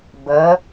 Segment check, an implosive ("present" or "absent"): absent